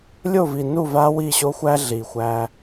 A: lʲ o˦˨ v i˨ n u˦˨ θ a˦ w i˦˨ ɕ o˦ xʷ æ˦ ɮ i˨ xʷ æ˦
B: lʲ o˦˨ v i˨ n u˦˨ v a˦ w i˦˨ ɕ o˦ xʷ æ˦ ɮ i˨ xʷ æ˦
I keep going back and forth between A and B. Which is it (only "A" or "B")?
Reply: B